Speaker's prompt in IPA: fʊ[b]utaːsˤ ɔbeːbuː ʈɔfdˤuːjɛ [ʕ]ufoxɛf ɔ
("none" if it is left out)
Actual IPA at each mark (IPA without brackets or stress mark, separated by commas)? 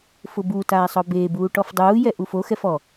b, ʔ